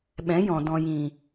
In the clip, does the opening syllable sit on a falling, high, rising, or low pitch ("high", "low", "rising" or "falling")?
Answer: rising